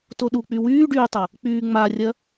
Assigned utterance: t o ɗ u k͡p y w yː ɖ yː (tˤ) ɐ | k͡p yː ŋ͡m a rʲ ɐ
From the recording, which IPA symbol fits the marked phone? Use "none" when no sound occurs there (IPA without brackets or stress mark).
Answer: tˤ